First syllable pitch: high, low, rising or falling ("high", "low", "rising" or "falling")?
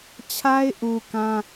high